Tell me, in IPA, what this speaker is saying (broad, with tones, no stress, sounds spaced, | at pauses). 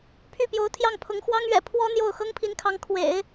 pʰ y˥˩ p j o˧˥ ʊ̯ t̪ʰ j ɑ˥˩ ŋ pʰ ʊ˧˥ ŋ x w ɑ˥ ŋ ɥ ɛ̰˨˩ pʰ w ɔ˥ n̪ j o˥˩ ʊ̯ x ɤ˥ ŋ pʰ i˧˥ n kʰ ɑ˧˥ ŋ kʰ w ḛ˨˩˦ ɪ̯